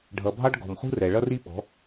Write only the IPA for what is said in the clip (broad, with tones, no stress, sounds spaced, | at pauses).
ɖʱ ʌ˨ bʱ ɑ˦ ɖ ɡ ɔ̤˨ m χ ṳ˦ r ɛ˨ ɭ ʌ˦ r i˦ ɓ ɔ̤˨˦